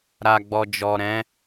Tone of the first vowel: low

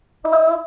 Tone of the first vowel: high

